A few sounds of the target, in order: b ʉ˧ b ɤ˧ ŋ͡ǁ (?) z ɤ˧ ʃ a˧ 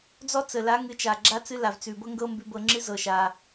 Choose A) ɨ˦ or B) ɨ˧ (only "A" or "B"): A